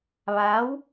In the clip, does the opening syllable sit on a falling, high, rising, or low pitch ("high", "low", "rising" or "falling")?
rising